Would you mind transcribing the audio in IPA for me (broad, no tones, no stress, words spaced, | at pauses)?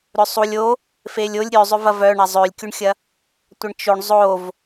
ɾʏsˤulʲ o | felʲolʲ ɾʲøzˤʏ vɐvœ ɳɐzˤølʲkʲuɳxʲɐ | tʷɐɳt͡ʃoɳ zˤov